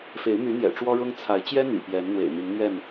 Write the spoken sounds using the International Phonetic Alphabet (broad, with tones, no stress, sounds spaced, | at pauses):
f e˨˦ ɪ̯ m y˨˦ n̪ j ɛ̰˨˩ ʈ͡ʂ w ɔ˦ ɻ ʊ˦ ŋ t͡sʰ a˨˦ ɪ̯ t͡ɕ j ɛ˦ n̪ y̰˨˩ p j ɛ˨˦ n n̪ w ḛ˨˩ ɪ̯ n̪ i˨˦ ŋ n̪ ɥ ɛ˥˨ n